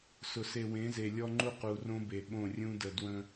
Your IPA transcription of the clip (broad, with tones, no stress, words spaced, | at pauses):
sʊ˨se˨wẽ˨˦ze˨ lʲɔ˦ŋ͡ǃu˦ qu˨rõ˦be˨ ɓõ˦˨rʲũ˦ də˨ dwə̃˦